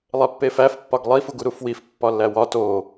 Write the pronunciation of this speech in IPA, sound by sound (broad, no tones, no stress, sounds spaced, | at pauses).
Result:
lˠ e pː e f æ f pː ɒ ɡ lˠ i f u ɡ u ɾ u f w i f pː ɒ lː æ w ɒ t o